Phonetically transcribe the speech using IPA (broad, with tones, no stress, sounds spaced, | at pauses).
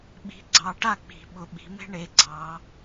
ɓ i̤˨˦ ɡ͡ǀ ɑ˨˦ ʈ a˥˨ k͡p i̤˨˩˦ ɓ ʊ˨˦ ɓ i̤˨˦ m e̤˥ ɳ e˨˦ ɡ͡ǀ ɑ˨˦